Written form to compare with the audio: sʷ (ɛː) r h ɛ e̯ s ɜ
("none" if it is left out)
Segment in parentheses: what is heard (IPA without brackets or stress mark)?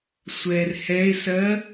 ɛː